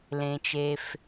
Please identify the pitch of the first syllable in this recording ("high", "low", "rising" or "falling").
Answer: low